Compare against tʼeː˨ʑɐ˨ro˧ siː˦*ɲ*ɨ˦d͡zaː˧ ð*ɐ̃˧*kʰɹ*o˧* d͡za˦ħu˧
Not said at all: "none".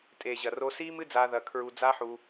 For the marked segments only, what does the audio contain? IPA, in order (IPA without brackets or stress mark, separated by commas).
m, ɐ˧, u˧